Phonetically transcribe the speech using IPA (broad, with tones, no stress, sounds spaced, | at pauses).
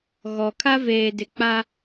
ɣ ɔ˨ kʰ a˦ v eː˨ d ɪ˨ k͡p a˦